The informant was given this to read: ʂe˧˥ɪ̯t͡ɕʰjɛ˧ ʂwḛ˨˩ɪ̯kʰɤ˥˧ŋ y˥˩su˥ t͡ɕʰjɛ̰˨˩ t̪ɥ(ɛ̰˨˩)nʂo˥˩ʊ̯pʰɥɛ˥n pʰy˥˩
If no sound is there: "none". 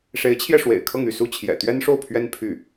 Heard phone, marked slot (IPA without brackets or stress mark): ɛ˥